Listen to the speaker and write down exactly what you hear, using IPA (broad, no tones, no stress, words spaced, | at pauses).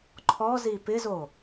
ǃʰɔzi pɪzo